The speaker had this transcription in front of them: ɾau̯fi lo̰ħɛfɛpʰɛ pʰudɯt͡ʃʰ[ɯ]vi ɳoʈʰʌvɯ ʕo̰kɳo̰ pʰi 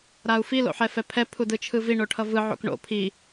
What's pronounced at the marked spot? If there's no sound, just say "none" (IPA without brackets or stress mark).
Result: ɯ